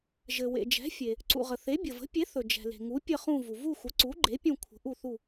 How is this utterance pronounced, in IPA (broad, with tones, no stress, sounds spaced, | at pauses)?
ʒ ɘ˩ w ḛ˩ d͡ʒ ɛ̤˩˥ fʲ e˩ | ǀ ṵ˩ ʁ ə˩ θ e˩˥ bʲ ə˩ v ə̤˩˥ pʲ e˩˥ θ ɵ˩ d͡ʒ ɛ̤˩ l e̤˩ ŋ u˩˥ pʲ ə˦˨ χ ũ˦˨ v u˩ v u˦˨ xʷ ə˩˥ ǀ u˩˥ ɡ͡ǃ e˩˥ pʲ ũ˦˨ kʷʰ ə̤˩˥ ʔ u˦˨ θ u˦˨